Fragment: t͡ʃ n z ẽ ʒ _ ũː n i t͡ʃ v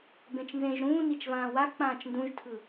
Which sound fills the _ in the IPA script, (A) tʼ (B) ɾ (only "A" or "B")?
B